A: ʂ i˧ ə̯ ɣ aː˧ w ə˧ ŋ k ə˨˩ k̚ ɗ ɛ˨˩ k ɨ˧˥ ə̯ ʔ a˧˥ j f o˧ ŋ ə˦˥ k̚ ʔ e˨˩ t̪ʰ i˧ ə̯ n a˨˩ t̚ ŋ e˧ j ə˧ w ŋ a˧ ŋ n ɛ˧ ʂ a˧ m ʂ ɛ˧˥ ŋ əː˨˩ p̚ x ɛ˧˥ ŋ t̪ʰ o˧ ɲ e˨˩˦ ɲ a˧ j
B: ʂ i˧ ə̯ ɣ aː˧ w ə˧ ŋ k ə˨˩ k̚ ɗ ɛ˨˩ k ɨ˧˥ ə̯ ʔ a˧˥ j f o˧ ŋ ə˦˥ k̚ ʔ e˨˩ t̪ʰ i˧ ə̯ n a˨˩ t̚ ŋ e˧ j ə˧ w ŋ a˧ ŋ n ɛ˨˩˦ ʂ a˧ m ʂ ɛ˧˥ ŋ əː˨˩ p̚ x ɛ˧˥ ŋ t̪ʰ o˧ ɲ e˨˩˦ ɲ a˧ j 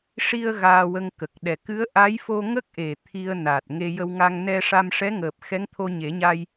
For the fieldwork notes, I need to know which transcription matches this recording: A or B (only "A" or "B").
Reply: A